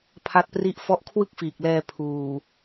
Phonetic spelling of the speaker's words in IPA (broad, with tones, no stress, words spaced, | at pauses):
pʰa˥˩t̚pri˥˩ʔ fɔ˦˥ʔkʰwɯ˥˩k̚fiː˨˩k̚lɛː˧ pʰuː˨˩